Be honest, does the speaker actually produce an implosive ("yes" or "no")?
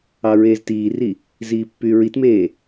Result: no